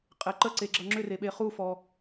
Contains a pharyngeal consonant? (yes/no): no